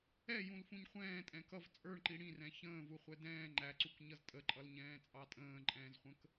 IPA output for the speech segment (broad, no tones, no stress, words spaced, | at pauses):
ɛjũlfũɲ χʷɛ̃ːtʼɛ̃ kʌv t͡sʼə˞ɳǃi ɽĩrɛ̃ çə̃ːvuχʷɛ dɛ̃ː ŋ͡ǃæǀukɲʌz tʼəǃʼʌlɲɛ̃ːt͡sʼɑ tʼə̃ːǃʼɛ̃ːzχʷə̃k